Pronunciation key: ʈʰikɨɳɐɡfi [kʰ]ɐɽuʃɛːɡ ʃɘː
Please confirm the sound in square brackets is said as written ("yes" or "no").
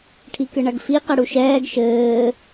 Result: no